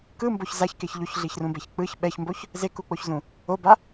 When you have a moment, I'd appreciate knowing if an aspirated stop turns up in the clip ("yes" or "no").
no